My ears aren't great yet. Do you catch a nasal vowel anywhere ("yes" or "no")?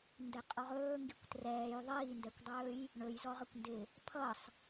no